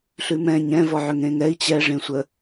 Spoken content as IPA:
ɬ ʉ m ɛ̃ ɲ ɛ̃ v ɔ ʕ ʏ ŋ ẽ ŋ ɛ i̯ t͡ɕ ɛ ʐ ẽ sʷ ə

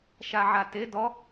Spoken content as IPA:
ʃ a ʕ a t e d ɔ

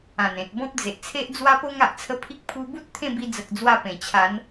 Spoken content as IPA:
ã˨˩ n ẽ˨ t̚ b ɔ̃˦ p̚ d͡z e˨ ʔ t͡sʰ e˦ ʔ d͡z w a˦ p o˦ ŋ a˨ ʔ t͡sʰ ə˧ pʰ i˦ k̚ pʰ u˧ b u˦ t̚ t̪ʰ ẽ˥˧ b i˧ d͡z ə˨ k̚ d͡z w a˧ p ẽ˨˩ t͡ɕʰ a˨˦ n

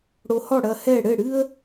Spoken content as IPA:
ɽ o˧ h ɔ˥˩ ɽ ɐ˧ h ɛ˥˩ ɽ ɘ˥˩ ɽ ɨ˥ ə̯

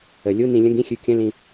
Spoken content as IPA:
ə˩˧ lʲ u˥˧ n ĩ˧ lʲ ə̃˥˧ ɡ ĩ˥˧ xʲ ʉ˧˩ kʲ ə̃˥˧ l ĩ˧

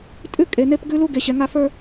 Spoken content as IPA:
tʼ ʉ˦ kʼ e˨ n e˦ p ɡ ʉ˦ l u˦ ɡ e˨ ɕ ɛ˨ ŋ a˦ f ə˞˦

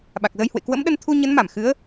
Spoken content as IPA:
ɓ a˨˩ k̚ z ə˧ j h w ḛ˧˨ k w ə̰˧˥ m ɗ ə˧ n t̪ʰ u˧ ɲ ə˨˦ n m a˧˩ m x ɨ˨˦ ə̯

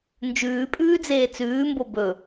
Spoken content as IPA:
n d͡ʒ ʉː pʼ ʉː d͡z eː t͡s ʉː m b o b ɵ

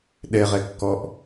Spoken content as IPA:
ɗ ɛ ʁ ɛ kː ɔ ʔ

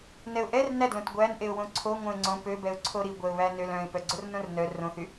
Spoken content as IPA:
n ɛ ʊ̯ ʔ ɛ r n æ d l õ t ɡʷ æ n ʔ e ʊ̯ w õ ǀʰ o ŋʷ œ̃ ɪ̯ ŋ͡ǀ õ p ø b ɛ ʊ̯ ǀʰ o ɾ i ɡʷ ɛ ʊ̯ β æ n ø l œ̃ ɪ̯ p œ ɡ͡ǀ o r n õ r n œ r õ θ y

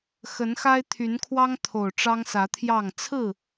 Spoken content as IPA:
x ə˨˦ n x a˦ ɪ̯ t̪ʰ y˨˦ n kʰ w ɑ˦ ŋ t̪ʰ o˨˩ ʊ̯ ʈ͡ʂ ɑ˦ ŋ s ä˨˦ t̪ʰ j ɑ˥˨ ŋ t͡sʰ ɹ̩˥˨

